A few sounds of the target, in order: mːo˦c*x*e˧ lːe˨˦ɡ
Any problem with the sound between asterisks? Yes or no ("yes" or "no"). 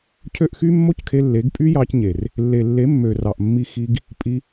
yes